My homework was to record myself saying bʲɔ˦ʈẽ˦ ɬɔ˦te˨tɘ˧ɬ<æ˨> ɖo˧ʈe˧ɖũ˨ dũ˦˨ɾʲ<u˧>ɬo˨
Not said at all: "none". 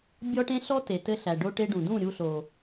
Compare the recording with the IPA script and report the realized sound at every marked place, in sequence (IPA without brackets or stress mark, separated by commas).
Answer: æ˨, u˧